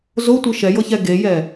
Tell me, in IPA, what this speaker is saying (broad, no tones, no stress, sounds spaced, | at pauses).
z o tʷ ɯ ʃ ɛ j ɤ ç ɛ ɡ e j ɛ